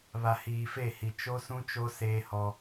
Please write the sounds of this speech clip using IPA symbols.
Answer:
β a˨ h iː˨ f e˦˨ h i˨ t͡ʃ o˦ s ũ˦ t͡ʃ o˦ s eː˦ h ɔ˦

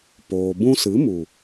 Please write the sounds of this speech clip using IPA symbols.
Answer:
p oː˨ b ũ˧ s ɨ˨˦ m u˨

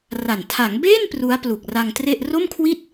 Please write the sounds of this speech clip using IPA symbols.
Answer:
r a˨˩ n tʰ a˩˦ ŋ b eː˥˩ n p r u˦˥ a̯ p l u˨˩ k̚ r a˧ ŋ t r e˥˩ ʔ r o˥˩ m kʰ w i˥˩ t̚

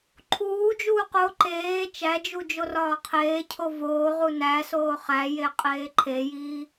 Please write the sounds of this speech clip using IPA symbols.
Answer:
ǃʰ uː d͡ʒ uː q o ǃ eː t͡ʃ æ d͡ʒ u d͡ʒ o r ɒː qʰ eː cʰ o v oː ʁ u n æ s oː χ æ j e qʼ eː ǃʰ e j iː

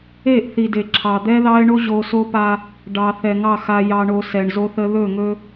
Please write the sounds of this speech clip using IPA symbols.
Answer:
e˦˨ ʔ θ i˨ d e˨ ǁʰ ɑ˨ d̪ ɛ˦ ð ɑ˦ ɪ̯ ɳ o˦ ʑ o˦ s o˦ p a˦ | ɖ ɑ˨ θ ɛ˨ ŋ ɑ˦˨ x a˨ j ɑ˨ ɳ o˨ s ɛ˨ ɳ z o˦ θ ə˦ ð ɵ˦˨ ŋ ɵ˦

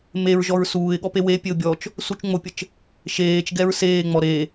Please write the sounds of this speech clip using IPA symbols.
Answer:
m e ɹ ʒ ɔ ɹ s uː ɪ̯ ɠ ɔ p e w e pʲ e ʊ̯ bʲ ɔ t͡ʃ | s u t͡ʃ ŋ͡m o pʲ ə t͡ʃ | ʃ eː t͡ʃ ɡ ɛ ɹ s eː ŋ͡m ɔ ɾ e

